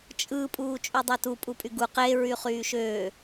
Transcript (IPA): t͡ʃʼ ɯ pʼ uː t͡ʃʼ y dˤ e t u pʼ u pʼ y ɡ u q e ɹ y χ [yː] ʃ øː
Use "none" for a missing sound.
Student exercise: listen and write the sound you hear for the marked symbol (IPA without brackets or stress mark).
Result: yː